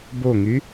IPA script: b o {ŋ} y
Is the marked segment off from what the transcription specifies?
no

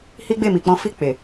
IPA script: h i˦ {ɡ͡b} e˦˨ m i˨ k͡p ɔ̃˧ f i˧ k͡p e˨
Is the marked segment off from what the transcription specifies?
no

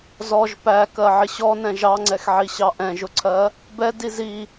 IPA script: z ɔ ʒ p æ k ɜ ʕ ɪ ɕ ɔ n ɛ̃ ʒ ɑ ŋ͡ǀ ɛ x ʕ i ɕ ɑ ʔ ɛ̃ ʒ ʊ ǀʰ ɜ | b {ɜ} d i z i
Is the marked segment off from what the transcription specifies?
yes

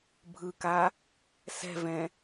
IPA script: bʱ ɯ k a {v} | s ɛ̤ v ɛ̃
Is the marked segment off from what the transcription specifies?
yes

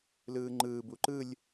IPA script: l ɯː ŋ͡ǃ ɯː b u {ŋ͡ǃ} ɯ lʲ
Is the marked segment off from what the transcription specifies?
yes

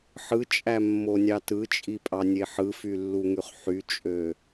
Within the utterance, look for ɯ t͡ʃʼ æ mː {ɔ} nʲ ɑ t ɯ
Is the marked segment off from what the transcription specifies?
yes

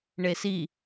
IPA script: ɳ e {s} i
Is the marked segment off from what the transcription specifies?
no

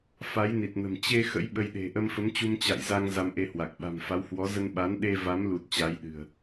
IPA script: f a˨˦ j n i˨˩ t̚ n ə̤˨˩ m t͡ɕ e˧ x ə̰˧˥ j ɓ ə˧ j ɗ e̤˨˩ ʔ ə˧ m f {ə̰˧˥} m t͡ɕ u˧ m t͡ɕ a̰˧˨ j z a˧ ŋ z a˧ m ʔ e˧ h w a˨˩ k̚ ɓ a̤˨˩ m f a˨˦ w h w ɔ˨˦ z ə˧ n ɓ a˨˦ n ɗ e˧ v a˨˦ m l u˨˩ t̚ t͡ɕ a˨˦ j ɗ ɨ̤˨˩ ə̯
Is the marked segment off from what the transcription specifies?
yes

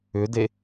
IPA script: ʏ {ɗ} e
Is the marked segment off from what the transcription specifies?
yes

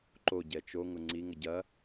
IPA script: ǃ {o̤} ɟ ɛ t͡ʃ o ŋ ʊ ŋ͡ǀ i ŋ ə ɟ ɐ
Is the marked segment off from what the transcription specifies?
yes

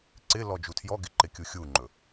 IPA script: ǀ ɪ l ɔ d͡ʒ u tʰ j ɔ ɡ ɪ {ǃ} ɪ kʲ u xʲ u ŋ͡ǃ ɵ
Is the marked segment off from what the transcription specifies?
no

